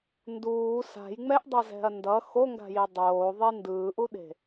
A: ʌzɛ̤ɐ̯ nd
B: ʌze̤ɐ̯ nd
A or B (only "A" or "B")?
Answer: A